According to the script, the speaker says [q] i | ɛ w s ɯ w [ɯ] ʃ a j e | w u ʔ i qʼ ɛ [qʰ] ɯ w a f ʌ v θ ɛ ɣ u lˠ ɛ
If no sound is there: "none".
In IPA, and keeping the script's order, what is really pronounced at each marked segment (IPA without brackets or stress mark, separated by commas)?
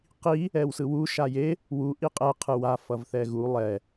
q, u, qʰ